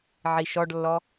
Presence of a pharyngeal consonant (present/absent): present